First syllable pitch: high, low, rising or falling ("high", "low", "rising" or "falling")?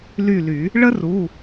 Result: falling